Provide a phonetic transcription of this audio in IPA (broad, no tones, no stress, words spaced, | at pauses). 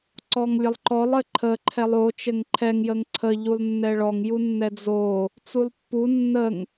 ǀɔŋlʲəlˠǃɔlˠ ɘǃʰə ǃʰɛlˠo t͡ʃɘŋǃʰɛŋ jəŋǀʰə ʎulˠnːɛɭɔŋ junːɛd͡zo | t͡sulˠpːu nːəŋ